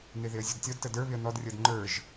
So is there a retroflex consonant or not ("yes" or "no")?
no